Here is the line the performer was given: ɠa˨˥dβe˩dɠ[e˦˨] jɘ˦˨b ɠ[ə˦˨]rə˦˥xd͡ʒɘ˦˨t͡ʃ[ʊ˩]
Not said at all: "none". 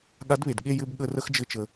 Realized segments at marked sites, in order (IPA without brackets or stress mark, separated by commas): e˦˨, ə˦˨, ə˩